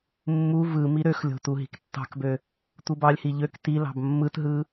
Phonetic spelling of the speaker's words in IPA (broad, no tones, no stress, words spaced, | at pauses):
mːu vɯ miɾøxlʲo̤ tuɦi̤ktːɑ̤kbø | tʷɯbɑlʲhi ʎøk tilɑ̤b mːɯtɦɯ